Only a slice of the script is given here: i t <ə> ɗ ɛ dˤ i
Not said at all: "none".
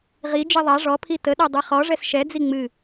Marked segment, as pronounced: ə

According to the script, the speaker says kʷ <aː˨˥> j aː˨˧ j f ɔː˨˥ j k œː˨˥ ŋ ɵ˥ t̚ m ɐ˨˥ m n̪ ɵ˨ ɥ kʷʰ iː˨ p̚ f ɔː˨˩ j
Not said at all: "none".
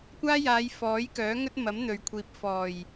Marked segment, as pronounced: aː˥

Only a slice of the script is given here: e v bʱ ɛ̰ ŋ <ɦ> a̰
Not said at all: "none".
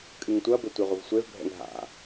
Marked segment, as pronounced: ɦ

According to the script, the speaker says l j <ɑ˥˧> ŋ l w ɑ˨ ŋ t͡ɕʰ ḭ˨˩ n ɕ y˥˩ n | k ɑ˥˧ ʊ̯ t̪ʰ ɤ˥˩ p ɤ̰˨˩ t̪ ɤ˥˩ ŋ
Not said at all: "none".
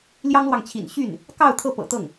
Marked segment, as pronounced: ɑ˥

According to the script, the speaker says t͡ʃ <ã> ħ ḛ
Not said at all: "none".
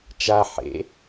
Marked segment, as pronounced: a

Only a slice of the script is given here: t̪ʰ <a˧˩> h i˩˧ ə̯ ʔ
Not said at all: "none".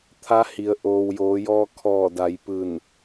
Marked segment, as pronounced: a˧˥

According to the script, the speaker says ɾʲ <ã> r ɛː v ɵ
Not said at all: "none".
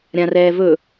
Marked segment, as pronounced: ã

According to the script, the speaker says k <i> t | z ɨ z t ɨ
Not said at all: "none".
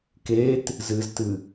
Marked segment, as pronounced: e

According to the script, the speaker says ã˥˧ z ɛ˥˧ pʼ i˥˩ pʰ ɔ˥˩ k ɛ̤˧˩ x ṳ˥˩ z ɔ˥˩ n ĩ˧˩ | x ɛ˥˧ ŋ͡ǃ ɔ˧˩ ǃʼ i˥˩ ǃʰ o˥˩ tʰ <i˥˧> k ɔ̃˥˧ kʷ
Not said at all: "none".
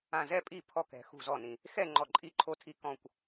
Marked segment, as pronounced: i˥˧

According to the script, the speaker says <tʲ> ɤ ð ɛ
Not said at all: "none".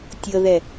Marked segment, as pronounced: tʲ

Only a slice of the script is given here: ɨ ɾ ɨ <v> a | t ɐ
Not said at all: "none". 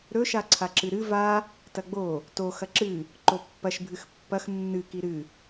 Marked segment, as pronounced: v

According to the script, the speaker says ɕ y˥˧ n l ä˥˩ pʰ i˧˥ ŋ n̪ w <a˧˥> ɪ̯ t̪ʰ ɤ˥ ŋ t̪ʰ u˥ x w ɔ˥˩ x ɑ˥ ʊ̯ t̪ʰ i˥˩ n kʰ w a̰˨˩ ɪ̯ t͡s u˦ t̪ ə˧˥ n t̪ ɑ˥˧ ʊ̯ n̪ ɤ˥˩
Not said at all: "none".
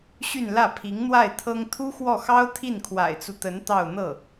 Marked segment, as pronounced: a˥˩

